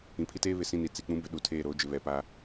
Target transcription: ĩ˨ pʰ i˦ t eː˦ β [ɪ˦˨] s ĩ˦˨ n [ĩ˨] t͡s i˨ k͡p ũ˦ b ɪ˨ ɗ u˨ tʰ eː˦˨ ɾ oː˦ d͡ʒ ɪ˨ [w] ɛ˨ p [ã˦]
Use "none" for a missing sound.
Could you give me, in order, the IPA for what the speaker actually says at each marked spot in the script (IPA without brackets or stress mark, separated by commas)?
ɪ˨, i˨, β, a˦